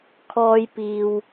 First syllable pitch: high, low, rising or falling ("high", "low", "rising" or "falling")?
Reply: high